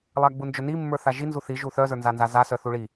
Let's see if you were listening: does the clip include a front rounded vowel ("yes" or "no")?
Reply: yes